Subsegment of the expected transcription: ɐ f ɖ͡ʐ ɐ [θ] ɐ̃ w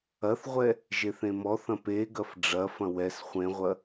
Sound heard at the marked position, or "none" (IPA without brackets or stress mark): f